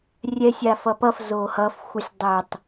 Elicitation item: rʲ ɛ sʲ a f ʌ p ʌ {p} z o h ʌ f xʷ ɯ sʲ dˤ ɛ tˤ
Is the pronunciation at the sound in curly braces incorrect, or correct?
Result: incorrect